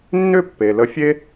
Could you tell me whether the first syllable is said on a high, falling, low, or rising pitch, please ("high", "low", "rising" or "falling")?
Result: high